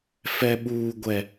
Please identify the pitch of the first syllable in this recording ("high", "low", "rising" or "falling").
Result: high